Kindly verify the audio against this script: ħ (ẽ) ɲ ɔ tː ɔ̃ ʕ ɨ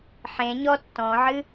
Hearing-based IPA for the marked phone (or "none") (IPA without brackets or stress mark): ẽ